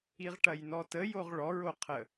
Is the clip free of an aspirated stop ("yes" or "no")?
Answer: no